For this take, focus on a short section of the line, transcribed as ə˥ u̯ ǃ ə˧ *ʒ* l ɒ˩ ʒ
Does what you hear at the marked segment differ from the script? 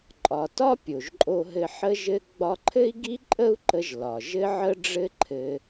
no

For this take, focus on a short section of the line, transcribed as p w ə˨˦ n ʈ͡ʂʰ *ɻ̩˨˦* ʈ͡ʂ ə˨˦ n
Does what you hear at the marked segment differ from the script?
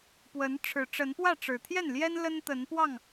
yes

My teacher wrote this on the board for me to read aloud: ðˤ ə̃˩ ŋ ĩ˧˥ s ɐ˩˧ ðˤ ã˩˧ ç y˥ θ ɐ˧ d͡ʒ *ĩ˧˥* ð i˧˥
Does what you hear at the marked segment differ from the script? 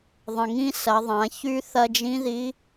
no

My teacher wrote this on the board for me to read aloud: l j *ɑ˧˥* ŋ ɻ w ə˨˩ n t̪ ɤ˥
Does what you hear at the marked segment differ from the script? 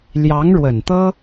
no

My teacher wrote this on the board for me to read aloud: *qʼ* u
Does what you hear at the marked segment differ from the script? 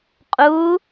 no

